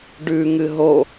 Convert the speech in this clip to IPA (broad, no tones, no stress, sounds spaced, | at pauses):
ɖ ʉ ŋ ɨ ɦ o